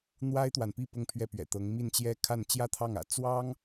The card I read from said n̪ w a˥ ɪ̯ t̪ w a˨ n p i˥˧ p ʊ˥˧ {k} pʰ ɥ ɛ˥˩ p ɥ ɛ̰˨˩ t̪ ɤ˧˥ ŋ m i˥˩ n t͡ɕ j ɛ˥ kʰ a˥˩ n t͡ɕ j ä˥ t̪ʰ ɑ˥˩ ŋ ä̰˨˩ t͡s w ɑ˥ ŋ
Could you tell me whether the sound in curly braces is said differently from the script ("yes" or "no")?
yes